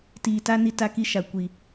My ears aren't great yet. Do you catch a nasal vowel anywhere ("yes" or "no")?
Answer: no